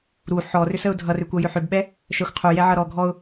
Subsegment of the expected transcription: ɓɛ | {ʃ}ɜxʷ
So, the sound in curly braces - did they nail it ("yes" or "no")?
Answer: yes